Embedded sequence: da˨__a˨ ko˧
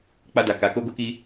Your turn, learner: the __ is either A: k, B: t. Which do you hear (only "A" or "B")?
A